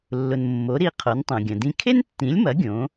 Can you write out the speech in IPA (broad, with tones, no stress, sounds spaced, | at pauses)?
lː ʊ˩ n mː o˩˥ ɾ i˧ qʰ o˩˥ n tˤ õ˩ ɡʲ ɐ̃˩ d ĩ˧ kʰ e˥ n tː ĩ˩˥ lʲ m ɐ˩˥ ɡʲ õ˩˥